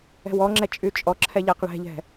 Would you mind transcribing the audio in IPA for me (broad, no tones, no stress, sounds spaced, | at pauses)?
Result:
ɛ̤ w ɔ ŋ͡ǁ ɛ t͡ʃʼ y t͡ʃʼ ɔ ǁʰ ɛ ʎ a q ɭ ɛ̤ ʎ ɛ̤